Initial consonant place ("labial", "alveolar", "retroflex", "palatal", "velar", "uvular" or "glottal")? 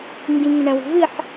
velar